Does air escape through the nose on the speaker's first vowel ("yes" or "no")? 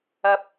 no